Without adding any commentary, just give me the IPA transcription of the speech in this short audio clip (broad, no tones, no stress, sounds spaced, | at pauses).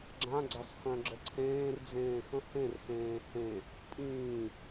ɡ͡ǁ ã ɡ͡ǀ a s x œ̃ ɡ͡ǁ ə ǀʰ ẽː r d͡z ẽː x ə̃ h ẽ r x ẽː h ẽ | pʼ ĩː